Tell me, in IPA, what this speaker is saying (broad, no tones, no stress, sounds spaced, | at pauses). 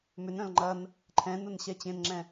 m ʏ n œ̃ l ŋ͡ǃ ɐ n | ǃʰ ɛ̃ n ʊ n ɕ ɛ t͡ɕ ẽ n ŋ͡ǁ ɛ̃